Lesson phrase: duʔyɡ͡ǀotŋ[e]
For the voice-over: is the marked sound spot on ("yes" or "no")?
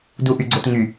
no